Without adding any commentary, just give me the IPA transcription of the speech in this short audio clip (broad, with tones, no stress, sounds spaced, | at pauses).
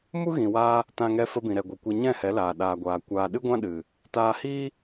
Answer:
m u˦ ɣ ĩ˨ w aː˧ | t ã˧ ŋ ɛ˧ f ə˧ b ĩ˨ ɾ ɛ˨ ɡʷ ɨ˨ kʷ ɛ˧ ɲ ɛ̃˦˨ h ɛ˨˦ l aː˨ ɗ aː˨ ɡʷ aː˨ kʷ aː˦ ɗ ɨ˦ ɡʷ ã˦ ɗ ɨ˨ | t aː˧ h iː˦